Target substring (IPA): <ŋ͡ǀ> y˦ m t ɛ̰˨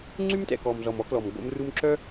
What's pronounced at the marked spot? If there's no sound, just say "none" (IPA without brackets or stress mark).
ŋ͡ǀ